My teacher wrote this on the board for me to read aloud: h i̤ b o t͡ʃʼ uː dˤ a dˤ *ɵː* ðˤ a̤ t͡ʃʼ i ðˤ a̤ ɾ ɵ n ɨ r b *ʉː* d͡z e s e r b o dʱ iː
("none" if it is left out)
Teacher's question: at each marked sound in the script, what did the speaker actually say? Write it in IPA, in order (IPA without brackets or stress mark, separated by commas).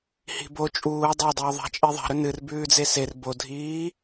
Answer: ɵː, ʉː